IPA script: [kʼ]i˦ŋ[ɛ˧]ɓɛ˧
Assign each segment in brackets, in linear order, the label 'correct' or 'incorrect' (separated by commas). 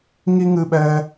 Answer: incorrect, incorrect